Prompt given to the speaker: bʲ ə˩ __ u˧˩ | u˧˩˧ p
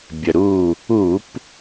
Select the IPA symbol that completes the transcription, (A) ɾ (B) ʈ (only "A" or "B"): A